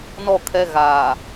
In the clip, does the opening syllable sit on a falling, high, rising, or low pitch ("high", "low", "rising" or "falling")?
falling